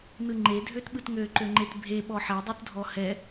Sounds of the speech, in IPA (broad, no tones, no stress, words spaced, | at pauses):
nɯŋ͡ǃe dʱøtɓɯtŋø ǃøŋ͡ǃetbʱe ɓɔħɛ dˤɯtdʱɔhɛ